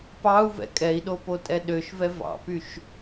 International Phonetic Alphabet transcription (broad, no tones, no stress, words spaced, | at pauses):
pɑu̯vɛ̰ kʼɛi̯ɗopotʼɛ ɗøʃvɛ vɑ̰pyʃ